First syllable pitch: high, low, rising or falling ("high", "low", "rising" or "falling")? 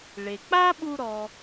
low